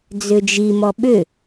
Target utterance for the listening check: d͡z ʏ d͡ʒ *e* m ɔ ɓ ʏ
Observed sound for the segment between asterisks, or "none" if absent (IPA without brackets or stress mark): i